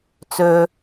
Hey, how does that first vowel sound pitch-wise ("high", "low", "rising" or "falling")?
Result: low